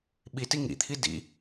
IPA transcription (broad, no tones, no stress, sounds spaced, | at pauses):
ɓ i t i ŋ ḭ t̪ʰ i d ḭ